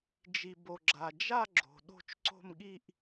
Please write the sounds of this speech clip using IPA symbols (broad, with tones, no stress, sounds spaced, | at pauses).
d͡ʒ i˨ b o˨ ɡ͡ǁ a˨ d͡ʒ a˥˧ ɡ͡ǁ o̤˨ ɗ o̤˥˧ t͡ʃ ǀ o̤˥˧ m ɠ i˥˧ ʔ